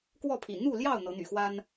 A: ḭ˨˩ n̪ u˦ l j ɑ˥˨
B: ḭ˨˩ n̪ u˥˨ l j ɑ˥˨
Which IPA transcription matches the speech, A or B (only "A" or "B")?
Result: B